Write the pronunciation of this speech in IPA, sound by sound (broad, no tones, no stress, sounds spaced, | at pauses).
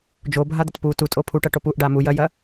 d͡ʒ o bʱ a d̪ ɐ t p u t u tʼ o pʰ u ʈ ɐ ʈ o p u ʔ ɖ a m u j ɐ j ɐ